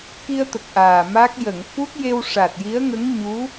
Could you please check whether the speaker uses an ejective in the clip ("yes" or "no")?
no